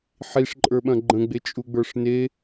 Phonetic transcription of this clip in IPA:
ħ i ʂ ǃʼ ə˞ ɓ ɐ̃ ɡ͡ǃ ə̃ ɡ͡b e t͡ʃʼ u ɡ͡b ə˞ ʂ n e

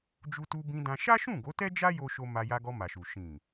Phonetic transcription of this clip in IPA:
d͡ʒ u˧ t u˧ b ĩ˧ d ã˧ ʃ a˦ ʃ ũ˦˨ ɡ o˨˦ t ɛ˦ d͡ʒ a˦ j o˦ ʃ o˦ m a˧ j a˧ ɡ ɔ˧ m a˨ ʃ u˨ ʃ ĩ˨

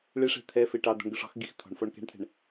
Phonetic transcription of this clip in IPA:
ɭ e ʂ ɛ̤ t̪ʰ ɛ f e ʈ ɑ d̪ ɔ̤ ɳ ɡ ʊ ʂ ɔ̤ x ɡ i x t̪ʰ ɔ̤ ɳ f ɔ ɳ k ɛ̤ ɳ t̪ʰ ɛ̤ ɳ

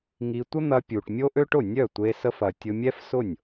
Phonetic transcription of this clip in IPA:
ŋ i˧ tʷ ə˥ n̪ ɐ˧ pʲ u˩ ʈ mʲ o˥ ʔ ø˥ ʈ ʊ˥˩ nʲ œ˥˩ tʷ e˧ s ə˧ f ɐ˩ tʲ ʊ˧ mʲ ɛ˥ f s ʊ˥˩ nʲ

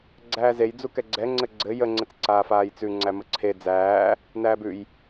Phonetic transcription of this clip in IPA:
ɡ͡ǀ æː z e j d͡z u k ɛ ɡ͡ǀ ɛ ŋ͡ǀ ɘ ɡ͡ǀ ɘ j ə ŋ͡ǀ ɘ t͡s ǀ aː f aː j t͡s ʉ ŋ͡ǀ æ m ə ǀʰ e d͡z æː | n æː b ʉ j

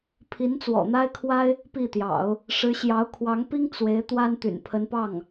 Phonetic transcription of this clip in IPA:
pʰ i˧˥ n t͡s w ɔ̰˨˩ n̪ a˥ ɪ̯ kʰ w a˥ ɪ̯ | p i˥˩ t̪ j ɑ̰˨˩˦ ʊ̯ | ʂ ɻ̩˧˥ ɕ j ɑ˧˥ ʊ̯ kʰ w ɑ˧˥ ŋ p i˥ ŋ t͡s w e˧˥ ɪ̯ t̪ w a˥ n t̪ y̰˨˩ n pʰ ə˧˥ n p ɑ˥˩ ŋ

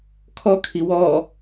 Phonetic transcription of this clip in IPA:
kʰ ɔ kʰ i w ɔ

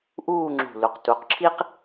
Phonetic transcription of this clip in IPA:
ʔ uː˥˧ ŋ͡ǁ ṳ˧˩ l u˩˧ q t u˩˧ q ǁʰ i˥ q

